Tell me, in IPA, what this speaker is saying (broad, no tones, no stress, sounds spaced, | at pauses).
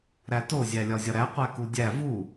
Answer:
ɾ æ t o zʲ æ lʲ ɒ zʲ ɒ ɾ æ qʷ æ k u dʲ æ v u